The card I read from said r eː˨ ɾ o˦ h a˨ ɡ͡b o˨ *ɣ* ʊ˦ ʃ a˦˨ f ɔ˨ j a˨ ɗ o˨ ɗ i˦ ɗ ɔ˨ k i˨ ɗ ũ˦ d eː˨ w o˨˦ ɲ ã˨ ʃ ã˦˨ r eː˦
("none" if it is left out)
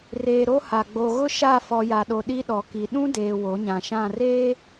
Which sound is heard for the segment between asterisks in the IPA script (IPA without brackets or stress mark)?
ɣ